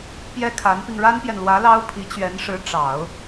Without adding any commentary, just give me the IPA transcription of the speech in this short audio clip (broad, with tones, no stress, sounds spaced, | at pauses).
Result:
p j ɛ˥ kʰ a˧˥ n p i˧ ŋ ɻ a˥ n p j ɛ˨ n l w ä˧˥ l ɑ˥ ʊ̯ pʰ i˧˥ t͡ɕ ɥ ɛ˧˥ n ʂ ɻ̩˧˥ ʈ͡ʂ ɑ˨˩˦ ʊ̯